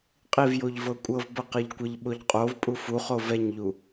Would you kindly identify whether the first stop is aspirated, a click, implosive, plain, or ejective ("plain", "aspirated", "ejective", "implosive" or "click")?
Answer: ejective